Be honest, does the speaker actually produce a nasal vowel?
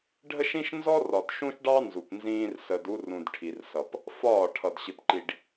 yes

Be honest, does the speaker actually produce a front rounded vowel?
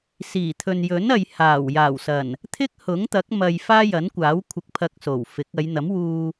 no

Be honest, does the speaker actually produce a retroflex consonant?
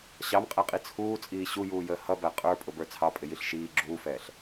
no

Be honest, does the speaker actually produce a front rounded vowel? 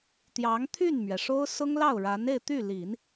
yes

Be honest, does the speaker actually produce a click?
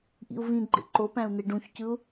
yes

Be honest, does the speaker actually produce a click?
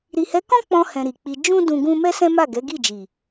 no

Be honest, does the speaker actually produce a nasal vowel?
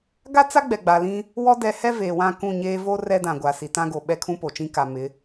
yes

